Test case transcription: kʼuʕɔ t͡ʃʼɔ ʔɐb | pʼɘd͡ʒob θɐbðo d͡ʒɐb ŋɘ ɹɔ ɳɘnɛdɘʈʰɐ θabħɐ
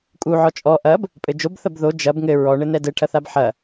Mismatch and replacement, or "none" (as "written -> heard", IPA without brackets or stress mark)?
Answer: none